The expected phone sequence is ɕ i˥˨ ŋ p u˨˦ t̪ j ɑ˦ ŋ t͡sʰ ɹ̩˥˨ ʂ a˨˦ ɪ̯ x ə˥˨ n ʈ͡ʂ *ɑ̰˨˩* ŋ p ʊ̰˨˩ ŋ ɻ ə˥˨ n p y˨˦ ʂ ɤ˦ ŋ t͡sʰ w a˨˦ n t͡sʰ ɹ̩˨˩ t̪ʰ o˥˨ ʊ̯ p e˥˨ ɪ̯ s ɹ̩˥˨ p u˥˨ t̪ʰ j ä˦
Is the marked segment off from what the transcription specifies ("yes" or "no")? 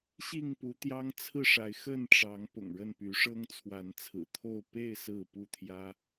yes